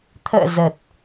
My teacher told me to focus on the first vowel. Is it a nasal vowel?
no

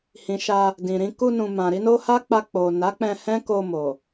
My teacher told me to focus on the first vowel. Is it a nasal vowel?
yes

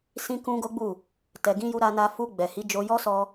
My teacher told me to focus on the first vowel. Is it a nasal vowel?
yes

